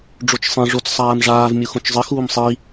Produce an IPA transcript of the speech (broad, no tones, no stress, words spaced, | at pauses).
ɖ͡ʐot͡ʃsˤẽ ʐot͡s sˤaːmʐaːv mʲuxõt͡ʃzˤɘ xuːmsˤi